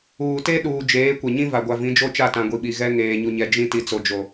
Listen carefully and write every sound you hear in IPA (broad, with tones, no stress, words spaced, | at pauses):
uː˨te˦ ɗuː˨d͡ʒeː˨˦ kʷɛ˨ɲĩ˦ va˨ ɡʷa˨vĩ˨˦ d͡ʒo˦t͡ʃa˦˨tã˨ ɡʷi˨ɓi˨ɣɛ˦ ŋeː˨ɲu˨ɲɛ˨ d͡ʒĩ˦ ti˦t͡so˦d͡ʒo˦